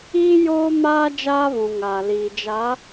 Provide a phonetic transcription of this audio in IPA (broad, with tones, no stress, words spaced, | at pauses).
iː˦joː˦ maː˦d͡ʒaː˦βũ˨ ŋa˨liː˨d͡ʒa˨˦